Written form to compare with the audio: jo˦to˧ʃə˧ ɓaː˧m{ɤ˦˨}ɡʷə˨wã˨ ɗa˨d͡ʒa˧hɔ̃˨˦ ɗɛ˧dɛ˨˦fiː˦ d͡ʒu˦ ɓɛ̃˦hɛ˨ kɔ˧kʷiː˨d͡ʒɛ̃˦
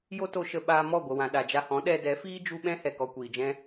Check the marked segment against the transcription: incorrect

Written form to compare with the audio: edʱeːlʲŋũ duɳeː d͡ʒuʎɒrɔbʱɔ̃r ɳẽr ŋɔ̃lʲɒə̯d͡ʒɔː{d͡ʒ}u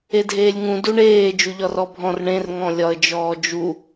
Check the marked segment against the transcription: correct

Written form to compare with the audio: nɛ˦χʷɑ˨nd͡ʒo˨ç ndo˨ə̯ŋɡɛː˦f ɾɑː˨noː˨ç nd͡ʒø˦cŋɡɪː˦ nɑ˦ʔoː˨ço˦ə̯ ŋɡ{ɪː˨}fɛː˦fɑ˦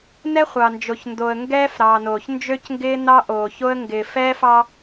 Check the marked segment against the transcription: correct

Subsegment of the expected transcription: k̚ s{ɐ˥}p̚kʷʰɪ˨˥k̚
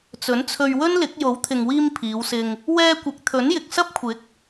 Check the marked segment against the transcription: correct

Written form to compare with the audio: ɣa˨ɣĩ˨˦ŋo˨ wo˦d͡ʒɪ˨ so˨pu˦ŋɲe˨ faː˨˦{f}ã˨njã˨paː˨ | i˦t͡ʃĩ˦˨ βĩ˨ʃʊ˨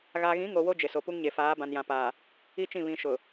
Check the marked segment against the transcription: incorrect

